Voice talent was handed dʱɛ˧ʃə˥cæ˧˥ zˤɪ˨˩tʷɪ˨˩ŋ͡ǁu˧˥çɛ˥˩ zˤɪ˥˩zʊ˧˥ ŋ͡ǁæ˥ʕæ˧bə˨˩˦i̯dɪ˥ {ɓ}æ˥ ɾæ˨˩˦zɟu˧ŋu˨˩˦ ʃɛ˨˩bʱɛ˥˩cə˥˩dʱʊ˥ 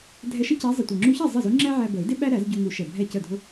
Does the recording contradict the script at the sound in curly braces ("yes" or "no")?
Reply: no